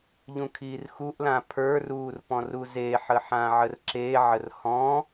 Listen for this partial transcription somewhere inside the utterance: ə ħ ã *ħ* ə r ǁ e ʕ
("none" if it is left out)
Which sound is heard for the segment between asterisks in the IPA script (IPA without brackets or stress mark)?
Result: ʕ